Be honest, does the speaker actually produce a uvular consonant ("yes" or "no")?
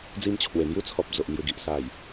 no